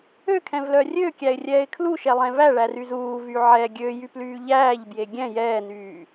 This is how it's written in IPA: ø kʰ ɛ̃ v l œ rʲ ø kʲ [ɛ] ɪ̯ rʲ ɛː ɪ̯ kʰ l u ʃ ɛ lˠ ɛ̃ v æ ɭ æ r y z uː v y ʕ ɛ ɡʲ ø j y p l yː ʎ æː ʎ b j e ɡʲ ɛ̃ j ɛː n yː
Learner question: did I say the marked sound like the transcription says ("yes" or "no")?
no